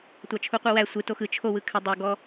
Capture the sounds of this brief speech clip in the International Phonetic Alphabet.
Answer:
tʷɑt͡ʃʰuqʷɯwæ sʷɯ toxɯ t͡ʃʰo wɯkʰɘ dˤo ɡɔ

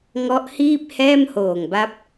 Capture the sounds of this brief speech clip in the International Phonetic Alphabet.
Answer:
ŋɔ˦˥ʔhiː˥˩p̚ hɛː˥˩mhoː˨˩ŋba˦˥p̚

